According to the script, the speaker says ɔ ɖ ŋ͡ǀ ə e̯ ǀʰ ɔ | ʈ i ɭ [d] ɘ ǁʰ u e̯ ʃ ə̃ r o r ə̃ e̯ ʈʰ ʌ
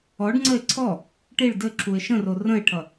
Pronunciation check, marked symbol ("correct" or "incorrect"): correct